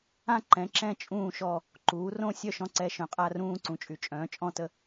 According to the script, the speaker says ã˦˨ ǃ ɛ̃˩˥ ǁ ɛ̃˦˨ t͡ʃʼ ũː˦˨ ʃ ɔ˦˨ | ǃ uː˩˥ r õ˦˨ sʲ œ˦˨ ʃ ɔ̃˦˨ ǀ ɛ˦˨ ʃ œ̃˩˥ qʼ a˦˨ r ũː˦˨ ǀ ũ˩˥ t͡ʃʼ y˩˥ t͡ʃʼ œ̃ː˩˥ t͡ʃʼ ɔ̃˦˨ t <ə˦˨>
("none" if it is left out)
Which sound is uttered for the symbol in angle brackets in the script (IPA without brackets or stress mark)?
ə˦˨